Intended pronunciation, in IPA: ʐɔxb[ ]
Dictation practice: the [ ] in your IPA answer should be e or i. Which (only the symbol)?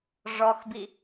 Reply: i